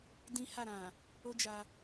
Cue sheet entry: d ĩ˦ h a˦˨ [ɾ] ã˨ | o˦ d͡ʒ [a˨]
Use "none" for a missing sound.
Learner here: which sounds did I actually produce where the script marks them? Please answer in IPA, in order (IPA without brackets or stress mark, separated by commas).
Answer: ɾ, a˧